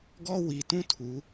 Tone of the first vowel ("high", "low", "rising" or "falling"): high